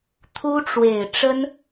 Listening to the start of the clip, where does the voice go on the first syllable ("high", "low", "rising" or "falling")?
high